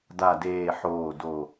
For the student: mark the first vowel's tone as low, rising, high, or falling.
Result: low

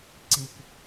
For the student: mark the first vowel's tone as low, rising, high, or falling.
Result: low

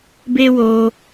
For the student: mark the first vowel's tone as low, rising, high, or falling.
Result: high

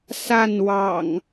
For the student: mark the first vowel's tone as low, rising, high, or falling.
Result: falling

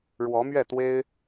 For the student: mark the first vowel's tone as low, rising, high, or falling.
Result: rising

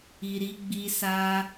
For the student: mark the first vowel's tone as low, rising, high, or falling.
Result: low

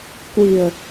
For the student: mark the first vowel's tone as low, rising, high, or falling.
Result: low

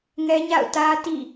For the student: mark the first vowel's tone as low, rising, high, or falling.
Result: high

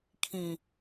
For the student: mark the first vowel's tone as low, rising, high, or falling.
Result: low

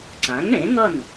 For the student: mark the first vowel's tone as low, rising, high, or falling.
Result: rising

